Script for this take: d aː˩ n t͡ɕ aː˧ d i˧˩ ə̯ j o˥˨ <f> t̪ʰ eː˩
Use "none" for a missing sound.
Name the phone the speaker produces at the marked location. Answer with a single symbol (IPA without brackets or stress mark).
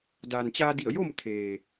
m